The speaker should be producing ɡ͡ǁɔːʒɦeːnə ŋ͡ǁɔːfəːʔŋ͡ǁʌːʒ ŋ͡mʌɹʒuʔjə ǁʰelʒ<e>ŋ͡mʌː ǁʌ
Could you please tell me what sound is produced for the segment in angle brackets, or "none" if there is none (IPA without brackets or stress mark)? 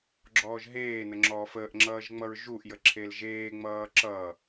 eː